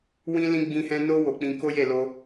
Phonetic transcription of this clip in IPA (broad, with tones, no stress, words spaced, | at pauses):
wĩ˦lĩ˦ ɡ͡bĩ˧hɛ̃˧ no˦ wo˧ k͡pĩ˧ko˦je˦˨lo˧